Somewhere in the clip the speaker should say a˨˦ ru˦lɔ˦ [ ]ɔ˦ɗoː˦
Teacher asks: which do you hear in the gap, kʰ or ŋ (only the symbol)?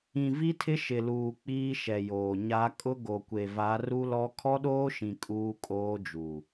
kʰ